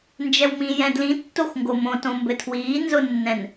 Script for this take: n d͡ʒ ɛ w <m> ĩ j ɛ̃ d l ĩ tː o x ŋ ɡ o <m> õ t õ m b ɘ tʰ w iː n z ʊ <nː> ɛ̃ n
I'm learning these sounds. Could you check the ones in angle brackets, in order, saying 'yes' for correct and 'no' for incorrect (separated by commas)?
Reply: yes, yes, yes